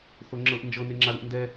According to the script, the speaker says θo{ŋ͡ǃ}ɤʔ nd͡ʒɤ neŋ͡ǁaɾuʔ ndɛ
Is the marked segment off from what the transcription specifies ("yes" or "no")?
yes